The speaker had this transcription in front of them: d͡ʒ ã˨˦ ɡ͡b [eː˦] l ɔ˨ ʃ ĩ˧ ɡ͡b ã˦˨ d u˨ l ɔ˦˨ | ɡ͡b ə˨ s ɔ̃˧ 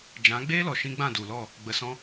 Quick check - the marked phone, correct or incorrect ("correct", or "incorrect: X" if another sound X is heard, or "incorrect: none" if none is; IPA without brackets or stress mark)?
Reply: correct